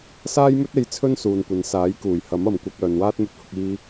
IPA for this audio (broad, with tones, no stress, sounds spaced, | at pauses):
s aː˥ j m ɵ˥ t̚ e˧ j t͡sʰ ɵ˥ n s uː˨ n kʷ ɐ˨˧ n s aː˨˥ j k uː˨˩ j h ɐ˨˥ m ɐ˨ m kʷ ɐ˧ k̚ œː˨ n w aː˥ t̚ m ɵ˧ t̚ h ʊ˧ k̚ iː˧